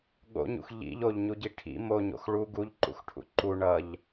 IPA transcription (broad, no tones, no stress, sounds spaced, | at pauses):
ɠ o̰ ɲ ṵ x ʎ ḭ ʎ o ʎ ɲ u ɟ i ʈʰ ḭ m o ɲ o̰ x ɭ u ɡ u ʎ ǃ ṵ x ʈʰ ṵ ǃ u ɳ ʌ ʎ